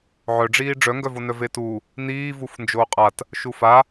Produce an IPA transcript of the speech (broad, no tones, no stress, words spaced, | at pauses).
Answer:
ʕœɖ͡ʐiː ɖ͡ʐœŋɡœvonœ vetu | niːvuf nd͡ʒoːqʼat | ʃufa